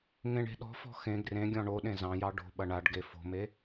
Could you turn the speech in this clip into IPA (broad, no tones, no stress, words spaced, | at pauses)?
ŋẽɳe̤ɗɔ̤fɔ̤ xẽ ɡrẽɡʲɔ̃ ɳo ɗẽzɑ̃jɑ ɖo̤ɓɐ ɳaɖɡe fo̤me